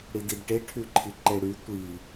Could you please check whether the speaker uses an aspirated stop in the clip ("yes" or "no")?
yes